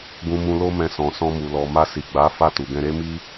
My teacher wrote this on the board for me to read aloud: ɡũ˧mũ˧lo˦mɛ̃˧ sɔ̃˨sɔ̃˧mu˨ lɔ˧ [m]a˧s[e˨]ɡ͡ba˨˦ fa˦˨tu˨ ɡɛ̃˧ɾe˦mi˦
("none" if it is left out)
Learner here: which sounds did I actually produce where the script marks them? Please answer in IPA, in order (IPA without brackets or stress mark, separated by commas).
m, i˨